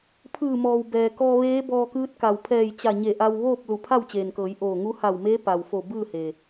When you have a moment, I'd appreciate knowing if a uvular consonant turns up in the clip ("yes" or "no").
no